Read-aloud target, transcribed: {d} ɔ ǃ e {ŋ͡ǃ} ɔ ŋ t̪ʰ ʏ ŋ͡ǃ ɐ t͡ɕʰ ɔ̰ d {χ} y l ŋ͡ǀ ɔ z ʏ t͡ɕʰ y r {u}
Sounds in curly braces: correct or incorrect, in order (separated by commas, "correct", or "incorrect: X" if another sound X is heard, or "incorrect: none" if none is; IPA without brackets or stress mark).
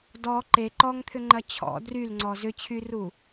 correct, incorrect: ǃ, incorrect: r, correct